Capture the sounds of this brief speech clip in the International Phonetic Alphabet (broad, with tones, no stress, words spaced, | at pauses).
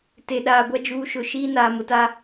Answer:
te˨ɗaː˨ɡʷa˦ d͡ʒuː˦ʃʊ˦˨ ʃiː˦naː˨mʊ˨ta˦